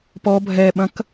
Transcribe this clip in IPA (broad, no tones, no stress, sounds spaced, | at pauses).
p ɔ bʱ ɛ ɓ ɐ̃ k